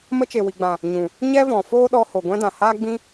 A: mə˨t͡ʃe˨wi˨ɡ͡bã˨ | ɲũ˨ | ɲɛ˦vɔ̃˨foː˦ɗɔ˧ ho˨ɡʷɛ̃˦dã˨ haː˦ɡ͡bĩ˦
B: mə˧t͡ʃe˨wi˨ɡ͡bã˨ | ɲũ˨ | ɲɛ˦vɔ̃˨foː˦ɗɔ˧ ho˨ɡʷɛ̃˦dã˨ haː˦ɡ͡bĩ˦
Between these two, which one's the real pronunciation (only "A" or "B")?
B